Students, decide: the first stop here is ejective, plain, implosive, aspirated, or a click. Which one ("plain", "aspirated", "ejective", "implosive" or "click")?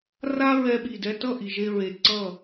implosive